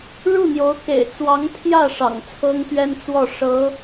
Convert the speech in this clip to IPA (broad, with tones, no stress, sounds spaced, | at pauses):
ɻ u˥˩ n̪ j o˧˥ ʊ̯ k ḛ˨˩ ɪ̯ t͡s w ɑ˧˥ ŋ pʰ j ä˥˩ ʂ ɑ̰˨˩ ŋ t͡sʰ ɤ˥ ŋ t̪ ɥ ɛ˥ n t͡s w ɔ˥˩ ʂ ɤ˧˥